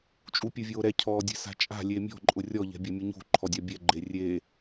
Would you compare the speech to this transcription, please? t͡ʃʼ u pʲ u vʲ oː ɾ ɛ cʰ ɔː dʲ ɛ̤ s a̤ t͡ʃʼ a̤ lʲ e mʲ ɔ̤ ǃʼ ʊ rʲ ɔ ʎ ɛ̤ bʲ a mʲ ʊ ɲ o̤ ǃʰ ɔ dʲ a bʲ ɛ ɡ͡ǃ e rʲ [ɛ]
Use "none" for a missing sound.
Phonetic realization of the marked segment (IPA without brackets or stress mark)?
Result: e